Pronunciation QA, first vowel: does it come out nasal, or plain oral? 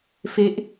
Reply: oral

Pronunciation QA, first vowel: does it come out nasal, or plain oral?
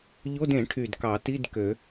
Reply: oral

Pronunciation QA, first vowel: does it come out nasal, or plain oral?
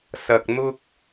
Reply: oral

